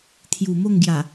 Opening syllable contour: low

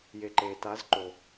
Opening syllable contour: low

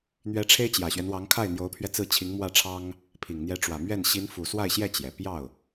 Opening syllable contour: rising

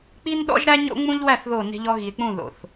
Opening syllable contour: high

